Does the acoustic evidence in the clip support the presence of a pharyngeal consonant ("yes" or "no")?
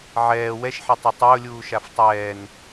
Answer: yes